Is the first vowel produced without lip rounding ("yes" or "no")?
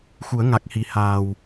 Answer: no